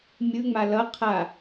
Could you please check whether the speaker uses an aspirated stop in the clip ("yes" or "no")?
yes